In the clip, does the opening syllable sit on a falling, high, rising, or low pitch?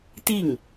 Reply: falling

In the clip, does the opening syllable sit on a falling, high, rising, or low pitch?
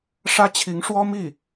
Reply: high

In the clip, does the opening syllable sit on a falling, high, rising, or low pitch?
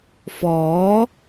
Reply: rising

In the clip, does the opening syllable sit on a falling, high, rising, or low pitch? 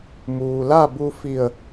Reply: low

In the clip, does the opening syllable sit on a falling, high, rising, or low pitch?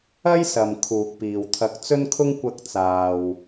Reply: high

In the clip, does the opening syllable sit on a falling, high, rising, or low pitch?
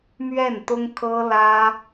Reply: falling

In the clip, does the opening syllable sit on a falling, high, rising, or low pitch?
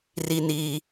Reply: high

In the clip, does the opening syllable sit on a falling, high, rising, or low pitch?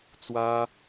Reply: high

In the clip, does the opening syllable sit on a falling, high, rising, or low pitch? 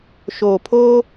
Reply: low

